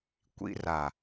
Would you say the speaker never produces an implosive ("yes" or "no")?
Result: yes